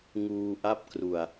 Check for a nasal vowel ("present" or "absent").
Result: absent